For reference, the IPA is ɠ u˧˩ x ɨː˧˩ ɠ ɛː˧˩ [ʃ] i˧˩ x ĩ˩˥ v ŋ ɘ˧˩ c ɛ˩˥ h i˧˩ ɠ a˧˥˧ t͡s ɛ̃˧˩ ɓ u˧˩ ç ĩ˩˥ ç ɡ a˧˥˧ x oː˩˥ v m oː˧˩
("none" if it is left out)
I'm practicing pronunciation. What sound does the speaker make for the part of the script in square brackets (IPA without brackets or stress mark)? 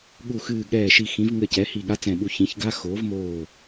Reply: ʃ